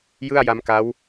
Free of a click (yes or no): yes